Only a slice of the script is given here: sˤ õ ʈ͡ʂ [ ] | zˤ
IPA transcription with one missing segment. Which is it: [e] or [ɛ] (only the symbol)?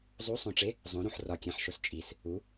e